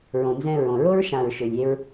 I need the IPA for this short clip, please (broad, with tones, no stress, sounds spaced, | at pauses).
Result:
ɹ õ˨ n z ɛ̃˧ ɹ õ˨ ɹ o˦ ɹ ʃ ã˨ ɹ ʃ ø˨ lʲ e˧ ɹ